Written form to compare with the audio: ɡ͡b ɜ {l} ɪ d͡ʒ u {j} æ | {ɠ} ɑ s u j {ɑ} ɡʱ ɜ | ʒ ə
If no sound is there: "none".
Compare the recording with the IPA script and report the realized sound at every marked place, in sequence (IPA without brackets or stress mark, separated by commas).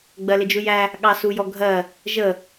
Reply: l, j, ɠ, ɔ